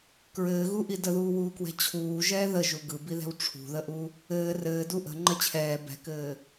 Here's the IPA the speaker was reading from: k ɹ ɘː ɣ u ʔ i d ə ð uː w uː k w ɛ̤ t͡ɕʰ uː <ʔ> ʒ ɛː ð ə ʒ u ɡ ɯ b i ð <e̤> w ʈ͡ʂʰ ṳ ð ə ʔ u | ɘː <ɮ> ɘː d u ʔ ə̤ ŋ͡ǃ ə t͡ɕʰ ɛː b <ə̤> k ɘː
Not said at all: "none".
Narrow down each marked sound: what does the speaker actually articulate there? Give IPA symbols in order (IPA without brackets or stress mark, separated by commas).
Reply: none, ɛ̤, r, ɛ̤